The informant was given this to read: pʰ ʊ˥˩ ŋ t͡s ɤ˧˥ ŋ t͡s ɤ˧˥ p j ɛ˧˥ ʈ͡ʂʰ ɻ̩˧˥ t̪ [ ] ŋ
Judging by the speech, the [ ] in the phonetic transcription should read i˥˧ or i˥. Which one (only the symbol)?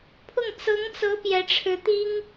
i˥